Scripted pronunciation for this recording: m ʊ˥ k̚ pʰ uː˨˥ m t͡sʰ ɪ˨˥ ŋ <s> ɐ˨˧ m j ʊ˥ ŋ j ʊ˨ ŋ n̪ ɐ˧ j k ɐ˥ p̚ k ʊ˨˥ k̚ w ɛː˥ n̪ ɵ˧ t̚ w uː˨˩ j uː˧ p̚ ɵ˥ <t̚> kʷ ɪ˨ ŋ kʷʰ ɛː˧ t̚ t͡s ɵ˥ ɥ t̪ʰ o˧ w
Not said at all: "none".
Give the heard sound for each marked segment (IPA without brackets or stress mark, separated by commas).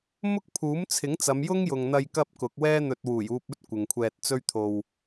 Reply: t͡s, t̚